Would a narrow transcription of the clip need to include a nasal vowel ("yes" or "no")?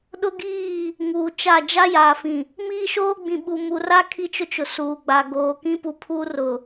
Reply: yes